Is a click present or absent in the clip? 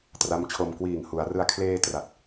absent